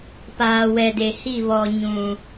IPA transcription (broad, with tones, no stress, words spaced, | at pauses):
paː˨wɛ˨de˨hi˦˨ βɔ˨ɲũ˨